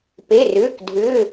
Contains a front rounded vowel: yes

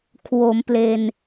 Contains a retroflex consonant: no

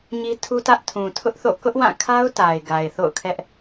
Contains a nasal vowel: yes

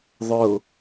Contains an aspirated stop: no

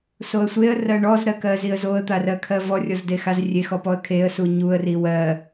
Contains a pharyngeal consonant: no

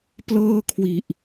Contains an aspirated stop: yes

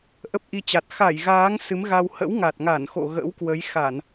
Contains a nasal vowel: no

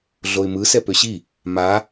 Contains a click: no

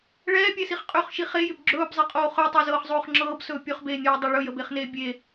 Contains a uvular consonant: yes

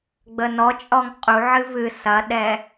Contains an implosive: yes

